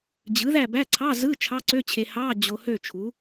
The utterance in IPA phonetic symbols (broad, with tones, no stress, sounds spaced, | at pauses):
d͡ʑ ɯ˩˥ ð æ˥˨ b æ˧˥˧ ǀʰ ɑ˧˥˧ z ɯ˧˥˧ t͡ʃʰ ɑ˧˥˧ ǀ ø˧˥˧ t͡ɕʰ e˨ h ɑ˧˥˧ d͡ʑ o˨ h ø˥˨ t͡ʃʰ u˩˥